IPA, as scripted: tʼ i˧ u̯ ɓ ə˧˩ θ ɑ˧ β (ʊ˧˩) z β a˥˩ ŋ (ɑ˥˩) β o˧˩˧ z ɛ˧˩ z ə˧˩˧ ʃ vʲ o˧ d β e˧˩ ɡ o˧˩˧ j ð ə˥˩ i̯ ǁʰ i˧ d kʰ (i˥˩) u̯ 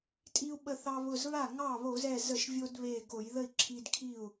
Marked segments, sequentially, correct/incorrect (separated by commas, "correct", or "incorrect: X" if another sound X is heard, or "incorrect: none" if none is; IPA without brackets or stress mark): correct, correct, correct